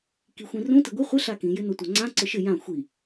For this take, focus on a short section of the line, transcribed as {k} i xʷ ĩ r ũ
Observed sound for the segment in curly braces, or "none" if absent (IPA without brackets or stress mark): k